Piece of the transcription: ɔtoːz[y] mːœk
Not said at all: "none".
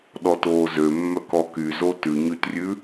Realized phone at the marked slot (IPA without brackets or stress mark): ø